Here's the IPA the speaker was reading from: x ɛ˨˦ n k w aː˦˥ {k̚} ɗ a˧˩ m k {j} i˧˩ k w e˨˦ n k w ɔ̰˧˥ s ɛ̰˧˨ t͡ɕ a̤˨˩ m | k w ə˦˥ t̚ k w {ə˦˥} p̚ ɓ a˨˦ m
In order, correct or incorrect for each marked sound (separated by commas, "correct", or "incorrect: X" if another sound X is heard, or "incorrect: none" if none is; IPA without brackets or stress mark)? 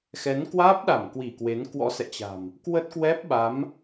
incorrect: p̚, incorrect: w, incorrect: ɛ˦˥